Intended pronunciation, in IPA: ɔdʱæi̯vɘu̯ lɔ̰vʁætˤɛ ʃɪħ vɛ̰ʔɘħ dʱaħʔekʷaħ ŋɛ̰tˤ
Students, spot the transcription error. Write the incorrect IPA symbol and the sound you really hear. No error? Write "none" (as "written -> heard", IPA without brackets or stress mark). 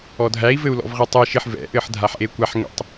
none